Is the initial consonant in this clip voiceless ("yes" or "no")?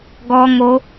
no